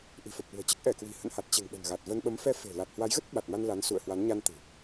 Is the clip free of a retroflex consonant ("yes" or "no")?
yes